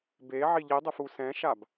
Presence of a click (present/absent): absent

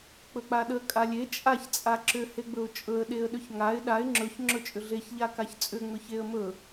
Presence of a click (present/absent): present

